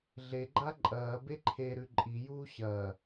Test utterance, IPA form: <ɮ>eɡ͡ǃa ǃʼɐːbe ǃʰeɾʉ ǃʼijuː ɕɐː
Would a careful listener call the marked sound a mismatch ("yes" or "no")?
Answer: no